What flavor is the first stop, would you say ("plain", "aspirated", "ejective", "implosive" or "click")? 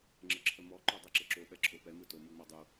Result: click